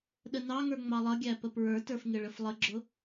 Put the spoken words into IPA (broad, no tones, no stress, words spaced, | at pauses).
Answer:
ɗənɑŋə˞ ŋ͡mɑlˠʌɡʲæ pəpɹə˞tə˞f ŋɪɭəflˠəɡ͡ǁʊ